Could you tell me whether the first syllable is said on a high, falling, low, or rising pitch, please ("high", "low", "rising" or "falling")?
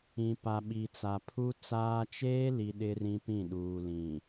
low